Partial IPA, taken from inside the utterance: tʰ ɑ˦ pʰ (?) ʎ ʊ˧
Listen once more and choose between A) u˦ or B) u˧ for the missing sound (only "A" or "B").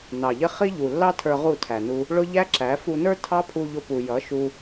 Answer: B